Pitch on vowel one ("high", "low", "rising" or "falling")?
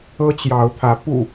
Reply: high